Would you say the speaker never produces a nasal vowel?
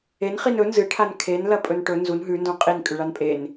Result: no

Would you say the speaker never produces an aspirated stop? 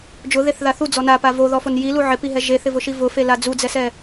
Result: yes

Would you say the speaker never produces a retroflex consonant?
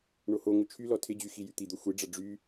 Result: no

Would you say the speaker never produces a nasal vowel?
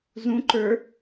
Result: no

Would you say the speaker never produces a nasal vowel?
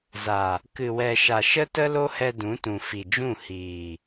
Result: no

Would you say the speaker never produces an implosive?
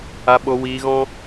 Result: no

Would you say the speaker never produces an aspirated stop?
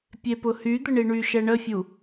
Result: yes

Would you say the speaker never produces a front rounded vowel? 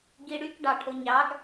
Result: no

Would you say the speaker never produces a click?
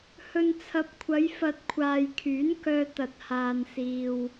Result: yes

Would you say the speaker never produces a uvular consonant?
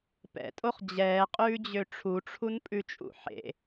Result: no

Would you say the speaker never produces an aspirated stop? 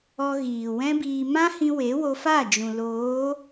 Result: yes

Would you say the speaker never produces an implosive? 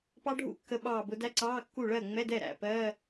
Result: no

